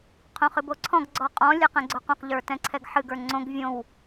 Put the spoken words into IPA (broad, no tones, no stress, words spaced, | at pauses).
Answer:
qʰõχɨboǀʰɔ̃ɡ ɡ͡ǀɔqʼɔ̃ lʲɛqɛ̃ɡ͡ǀoqõq ʎə˞tɛ̃ǀʰɛɡħɨɡ ə˞ŋ͡ǀõɡ vʲõw